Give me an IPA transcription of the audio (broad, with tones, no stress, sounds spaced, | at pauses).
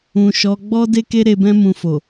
ũ˨ ʃ ɔ˨˦ ɡ͡b ɔ˦ d e˦ k e˦ ɾ e˧ b ɛ̃˦ m ũ˧ f o˨